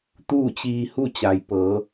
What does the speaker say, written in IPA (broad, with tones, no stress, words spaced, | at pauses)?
t̪uː˥˨t͡ɕiː˧hu˥˨ t͡ɕa˩jpɤː˩˧